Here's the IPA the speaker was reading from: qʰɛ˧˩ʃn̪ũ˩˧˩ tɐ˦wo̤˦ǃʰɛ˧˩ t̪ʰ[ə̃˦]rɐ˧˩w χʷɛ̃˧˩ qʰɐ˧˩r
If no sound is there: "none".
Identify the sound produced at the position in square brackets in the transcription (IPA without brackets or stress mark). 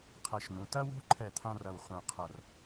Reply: ã˦